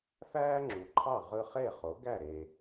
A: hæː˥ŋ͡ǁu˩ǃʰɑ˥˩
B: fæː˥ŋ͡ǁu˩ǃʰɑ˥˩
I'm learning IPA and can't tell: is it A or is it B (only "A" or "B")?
B